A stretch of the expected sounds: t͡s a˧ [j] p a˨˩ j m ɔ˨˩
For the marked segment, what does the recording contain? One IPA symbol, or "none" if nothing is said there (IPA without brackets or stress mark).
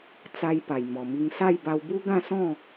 j